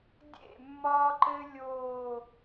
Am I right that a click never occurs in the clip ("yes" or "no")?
no